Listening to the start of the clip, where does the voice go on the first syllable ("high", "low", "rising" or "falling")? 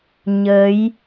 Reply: rising